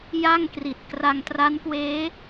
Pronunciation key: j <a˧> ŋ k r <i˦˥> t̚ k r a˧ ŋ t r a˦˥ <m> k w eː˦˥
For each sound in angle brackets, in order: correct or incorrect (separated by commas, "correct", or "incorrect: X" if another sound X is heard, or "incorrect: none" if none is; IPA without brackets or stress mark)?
incorrect: a˥˩, incorrect: i˨˩, incorrect: n